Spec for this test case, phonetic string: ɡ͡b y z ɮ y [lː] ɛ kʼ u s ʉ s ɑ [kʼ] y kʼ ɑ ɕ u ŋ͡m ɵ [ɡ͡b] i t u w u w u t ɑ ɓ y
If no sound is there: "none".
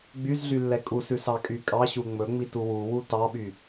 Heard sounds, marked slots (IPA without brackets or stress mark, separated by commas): lː, kʼ, ŋ͡m